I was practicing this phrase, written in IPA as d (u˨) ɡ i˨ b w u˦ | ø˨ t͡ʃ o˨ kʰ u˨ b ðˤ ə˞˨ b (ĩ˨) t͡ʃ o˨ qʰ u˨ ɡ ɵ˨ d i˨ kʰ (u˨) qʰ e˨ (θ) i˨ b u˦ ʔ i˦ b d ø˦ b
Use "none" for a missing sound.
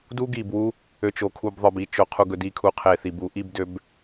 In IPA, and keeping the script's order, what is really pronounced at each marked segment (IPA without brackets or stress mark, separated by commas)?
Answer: u˦, i˨, u˨, θ